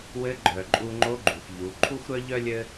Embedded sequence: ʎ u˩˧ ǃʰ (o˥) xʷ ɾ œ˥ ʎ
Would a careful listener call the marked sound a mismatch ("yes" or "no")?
yes